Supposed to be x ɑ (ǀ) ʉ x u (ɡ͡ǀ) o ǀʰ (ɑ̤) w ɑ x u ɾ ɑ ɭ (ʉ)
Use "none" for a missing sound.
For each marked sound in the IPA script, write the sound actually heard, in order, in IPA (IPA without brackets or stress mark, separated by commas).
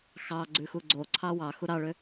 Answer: ɡ͡ǀ, ɡ͡ǀ, ɑ, ø